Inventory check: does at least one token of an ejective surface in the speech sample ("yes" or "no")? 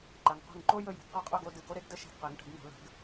yes